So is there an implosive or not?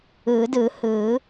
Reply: no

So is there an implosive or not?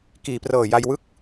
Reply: no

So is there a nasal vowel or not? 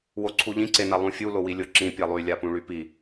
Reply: yes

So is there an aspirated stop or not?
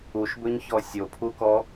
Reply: yes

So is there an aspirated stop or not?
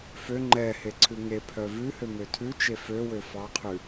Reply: yes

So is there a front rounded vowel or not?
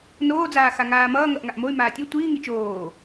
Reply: yes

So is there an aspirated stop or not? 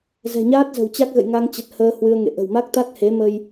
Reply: no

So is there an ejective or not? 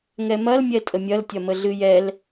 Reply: yes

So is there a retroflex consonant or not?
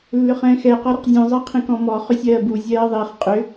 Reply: no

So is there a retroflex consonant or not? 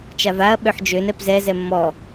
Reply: no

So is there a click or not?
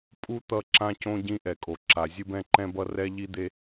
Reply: yes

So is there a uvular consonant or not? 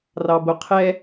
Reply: yes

